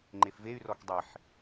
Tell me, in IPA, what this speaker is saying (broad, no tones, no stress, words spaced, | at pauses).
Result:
ŋ͡ǃefvey̯ rɔkdˤiħ